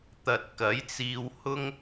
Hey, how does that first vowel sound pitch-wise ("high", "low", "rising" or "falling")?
low